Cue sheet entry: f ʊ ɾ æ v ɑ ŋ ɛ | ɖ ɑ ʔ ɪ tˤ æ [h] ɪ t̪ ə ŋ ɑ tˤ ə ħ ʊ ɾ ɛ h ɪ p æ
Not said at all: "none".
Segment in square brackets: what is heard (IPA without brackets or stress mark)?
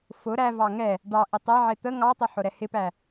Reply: ʕ